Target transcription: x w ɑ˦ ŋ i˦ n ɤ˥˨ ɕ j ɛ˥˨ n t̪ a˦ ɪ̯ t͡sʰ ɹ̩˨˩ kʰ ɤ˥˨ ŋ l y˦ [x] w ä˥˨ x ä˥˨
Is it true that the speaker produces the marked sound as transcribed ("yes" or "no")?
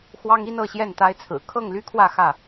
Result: no